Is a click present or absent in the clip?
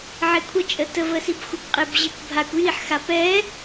absent